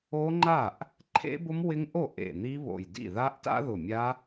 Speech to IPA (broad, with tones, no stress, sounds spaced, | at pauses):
o˦˥ ŋ͡ǃ a˥˩ ʔ | ǃʰ ḛ˦˥ b ʊ˦˥ m w ɪ˦˥ ŋ ʔ o˥˩ ʔ ḛ˧˩ n̪ i˦˥ β o̰˧˩ j d ḭ˥˩ ð a˦˥ ʔ t a̰˦˥ ð ʊ˧˩ mʲ a˦˥